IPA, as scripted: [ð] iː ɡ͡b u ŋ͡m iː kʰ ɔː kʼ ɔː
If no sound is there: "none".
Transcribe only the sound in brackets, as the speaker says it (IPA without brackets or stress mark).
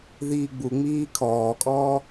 ð